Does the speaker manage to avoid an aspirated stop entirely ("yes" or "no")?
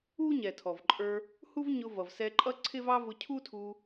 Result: no